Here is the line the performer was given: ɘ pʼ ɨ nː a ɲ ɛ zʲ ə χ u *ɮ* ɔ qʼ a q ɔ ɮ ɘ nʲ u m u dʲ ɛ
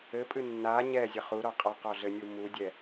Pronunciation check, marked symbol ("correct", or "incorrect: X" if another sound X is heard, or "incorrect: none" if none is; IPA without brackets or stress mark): incorrect: ɾ